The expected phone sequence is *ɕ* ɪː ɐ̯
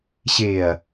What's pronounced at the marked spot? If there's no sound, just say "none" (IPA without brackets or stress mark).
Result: ɕ